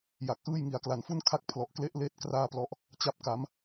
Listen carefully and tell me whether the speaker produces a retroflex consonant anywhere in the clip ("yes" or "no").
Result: no